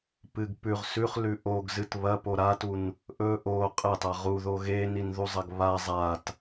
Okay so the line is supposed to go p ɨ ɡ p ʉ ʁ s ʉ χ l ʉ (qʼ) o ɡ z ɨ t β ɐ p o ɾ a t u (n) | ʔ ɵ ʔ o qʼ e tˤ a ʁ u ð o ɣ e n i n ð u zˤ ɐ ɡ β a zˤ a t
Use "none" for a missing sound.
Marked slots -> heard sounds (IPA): ʔ, n

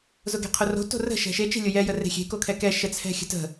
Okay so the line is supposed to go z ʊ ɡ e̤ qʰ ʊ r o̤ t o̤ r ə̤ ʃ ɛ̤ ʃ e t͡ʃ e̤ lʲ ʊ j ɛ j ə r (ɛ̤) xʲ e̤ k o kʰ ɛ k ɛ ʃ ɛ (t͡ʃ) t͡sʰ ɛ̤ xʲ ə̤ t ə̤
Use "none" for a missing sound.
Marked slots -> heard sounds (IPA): e̤, none

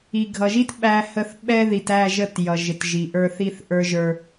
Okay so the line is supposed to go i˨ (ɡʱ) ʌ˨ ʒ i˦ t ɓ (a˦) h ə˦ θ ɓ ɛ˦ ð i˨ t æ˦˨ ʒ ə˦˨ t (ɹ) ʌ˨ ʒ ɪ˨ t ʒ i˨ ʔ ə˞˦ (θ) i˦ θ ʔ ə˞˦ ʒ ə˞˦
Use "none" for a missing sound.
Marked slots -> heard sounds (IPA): ɡʱ, æ˦, j, θ

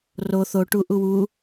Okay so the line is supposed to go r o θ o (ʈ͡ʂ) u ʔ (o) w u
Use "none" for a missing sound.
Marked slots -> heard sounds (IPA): ʈ, u

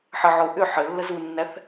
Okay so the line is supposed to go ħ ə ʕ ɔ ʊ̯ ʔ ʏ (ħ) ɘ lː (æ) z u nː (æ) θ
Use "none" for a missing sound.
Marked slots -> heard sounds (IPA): ħ, ə, æ

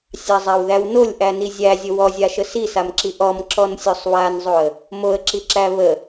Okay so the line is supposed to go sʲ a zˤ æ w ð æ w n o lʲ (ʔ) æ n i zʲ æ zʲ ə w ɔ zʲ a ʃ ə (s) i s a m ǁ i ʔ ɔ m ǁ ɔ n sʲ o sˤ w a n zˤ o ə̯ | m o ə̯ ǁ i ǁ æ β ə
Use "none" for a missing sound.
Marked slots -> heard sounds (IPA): ʔ, s

